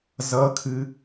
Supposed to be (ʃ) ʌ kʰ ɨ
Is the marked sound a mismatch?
yes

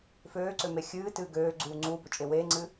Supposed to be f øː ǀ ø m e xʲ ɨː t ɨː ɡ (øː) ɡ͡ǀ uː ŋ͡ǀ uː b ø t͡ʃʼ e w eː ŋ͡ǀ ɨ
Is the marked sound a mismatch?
no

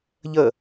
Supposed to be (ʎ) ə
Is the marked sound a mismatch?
no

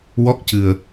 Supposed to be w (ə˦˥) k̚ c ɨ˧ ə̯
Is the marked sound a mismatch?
yes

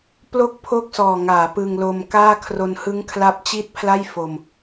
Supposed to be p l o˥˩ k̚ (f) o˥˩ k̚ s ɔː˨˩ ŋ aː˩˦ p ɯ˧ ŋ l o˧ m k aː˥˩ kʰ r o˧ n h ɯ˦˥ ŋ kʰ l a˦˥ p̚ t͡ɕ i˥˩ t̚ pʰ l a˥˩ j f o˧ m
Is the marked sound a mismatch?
yes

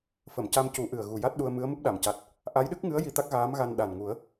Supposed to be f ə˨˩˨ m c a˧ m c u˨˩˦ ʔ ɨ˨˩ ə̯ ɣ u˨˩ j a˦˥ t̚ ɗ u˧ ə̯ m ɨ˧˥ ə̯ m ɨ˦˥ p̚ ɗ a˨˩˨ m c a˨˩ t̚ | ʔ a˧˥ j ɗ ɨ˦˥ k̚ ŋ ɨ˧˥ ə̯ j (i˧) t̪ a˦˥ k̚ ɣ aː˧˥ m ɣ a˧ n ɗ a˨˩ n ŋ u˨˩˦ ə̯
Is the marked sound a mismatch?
no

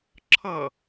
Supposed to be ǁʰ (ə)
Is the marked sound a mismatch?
yes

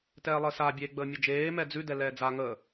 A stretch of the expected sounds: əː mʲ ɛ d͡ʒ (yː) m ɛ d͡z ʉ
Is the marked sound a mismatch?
yes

